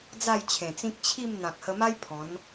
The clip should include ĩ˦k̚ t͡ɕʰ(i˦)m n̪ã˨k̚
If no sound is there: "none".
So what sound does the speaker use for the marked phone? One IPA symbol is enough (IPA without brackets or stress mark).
i˥˧